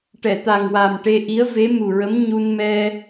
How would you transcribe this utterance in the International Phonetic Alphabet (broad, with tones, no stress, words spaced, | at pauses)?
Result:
ʈɛ˨˩˨t̪a˨˩ŋwa˨˩m ʈe˧ʔi˧˥ə̯ ve˧˥mu˨˩ɹə˧˥m ɲu˧nmɛ˧